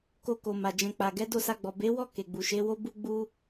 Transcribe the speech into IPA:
k o˧ k o˨ m a˨ d͡ʒ ɛ̃˨ k͡p a˨ ɡ ɛ˨˦ d o˦˨ s a˧ ɡ͡b ɔ˨ b e˨˦ w ɔ˦˨ k e˨ ɡ͡b u˨ ʃ e˨˦ w o˦ b u˦ ɡ͡b u˦

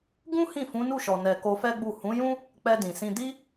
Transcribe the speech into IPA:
ɡ ũ˦ h ĩ˦˨ f ũ˨˦ n u˦˨ ʃ ɔ˨ n ɛ˨ k o˧ f ɛ˦ ɡ͡b u˦˨ h ũ˨˦ j ũ˦ | k͡p ɛ˧ d ĩ˨ s ĩ˧ d i˦

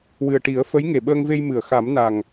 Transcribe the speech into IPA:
w ɨ˨˩ ə̯ ʈ i˨˩˦ ə̯ f ə˧˥ j ŋ e˨˩ ɓ əː˧ ŋ v e˧ j m ɨ˨˩˨ ə̯ x a˨˩˦ m n a˨˩ ŋ

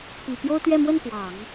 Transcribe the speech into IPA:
p i˨˩ p j o˥ ʊ̯ t̪ ɥ ɛ˥˧ m w ə˥˩ n p w ɑ˨˩˦ ŋ

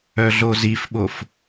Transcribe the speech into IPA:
œ ɮ o z i f ɓ o f

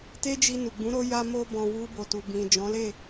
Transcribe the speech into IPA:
t e˦ d͡ʒ i˧ n u˨ ɡ͡b ũ˨˦ ɾ o˧ j a˧ m o˧ b ɔ̃˨ w u˧ b o˨ t u˨ b ĩ˨ d͡ʒ ɔ̃˨˦ l e˦˨

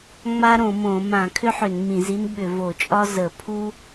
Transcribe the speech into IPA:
ŋ͡m a˥ ɾ õ˧˩˧ m õ˧˩˧ m ã˧˩˧ kʰ ʏ˥ ħ ʏ˧˩˧ n m ĩ˧˩˧ z i˥ n ɓ ʏ˧˩˧ v o˧˩˧ t͡ʃʼ ɒ˥ z ə˧˩˧ pʰ u˥

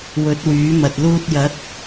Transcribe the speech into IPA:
w ɵ˨˥ t̚ w yː˨˥ m ɐ˨ t̚ l uː˧ t̚ j ɐ˨˥ t̚

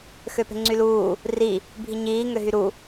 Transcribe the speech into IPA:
x ø p e̤ ŋ͡ǀ y l uː | r i | bʱ i ɲ iː ŋ ø ɦ y ɾ u

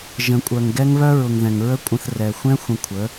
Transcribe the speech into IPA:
ʒ ə̃˨ kʷʼ œ˨ ŋ ɡ ɛ˦ ŋ β œ˦ ɹ ʊ˨ ŋ ð ɛ̃˨ ŋ ɹ ə˦ kʷʼ ə̃˧ θ r ɛ˨ xʷ ɛ̃˦ xʷ ə̃˧ kʷʰ ə˨˦

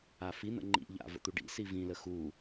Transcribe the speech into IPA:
a f i n̪ ə̰ ŋ͡ǃ ḭ ʎ a̰ v ə̰ t̪ u ɖ ḭ s i v ĩ l ə x u

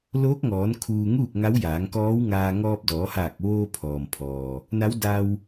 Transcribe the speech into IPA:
l oː˧˥ k̚ ŋ ɔː˩˧ n kʰ uː˧ ŋ uː˥˨ k̚ ŋ a˧˥ w j aː˩˧ ŋ k ɔː˧˥ w ŋ aː˧ ŋ ɔː˧ p̚ d ɔː˩˧ h aː˧˩ k̚ ʋ oː˧ pʰ ɔː˩ m pʰ ɔː˩ | n a˧˥ w d a˧ w

